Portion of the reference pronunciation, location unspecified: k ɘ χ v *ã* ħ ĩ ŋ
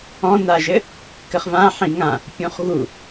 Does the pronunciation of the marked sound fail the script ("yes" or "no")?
no